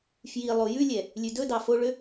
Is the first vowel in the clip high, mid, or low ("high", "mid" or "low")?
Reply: high